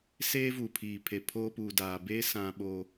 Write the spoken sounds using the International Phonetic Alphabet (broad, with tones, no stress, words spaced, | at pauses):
seː˦vuː˨pʰiː˨pʰe˨ pʰoː˦ puː˨daː˨beː˦ sã˦ ɓo˦